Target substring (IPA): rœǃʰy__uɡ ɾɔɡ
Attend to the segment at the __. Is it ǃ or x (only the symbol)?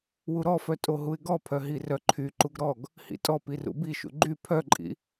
ǃ